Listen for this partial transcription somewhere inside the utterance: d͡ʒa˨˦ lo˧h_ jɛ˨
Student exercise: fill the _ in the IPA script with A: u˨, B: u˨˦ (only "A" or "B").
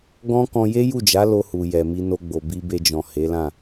A